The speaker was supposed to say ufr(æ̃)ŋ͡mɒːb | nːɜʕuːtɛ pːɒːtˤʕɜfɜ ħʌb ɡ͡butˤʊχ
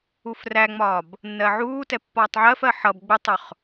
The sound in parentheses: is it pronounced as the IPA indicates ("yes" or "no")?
no